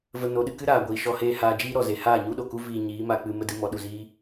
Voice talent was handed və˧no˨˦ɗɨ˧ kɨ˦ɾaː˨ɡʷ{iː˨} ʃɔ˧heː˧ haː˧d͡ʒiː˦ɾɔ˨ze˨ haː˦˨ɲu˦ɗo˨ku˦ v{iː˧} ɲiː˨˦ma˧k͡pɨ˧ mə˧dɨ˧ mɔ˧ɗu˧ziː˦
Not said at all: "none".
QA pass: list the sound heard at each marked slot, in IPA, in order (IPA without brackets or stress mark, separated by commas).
iː˨, iː˧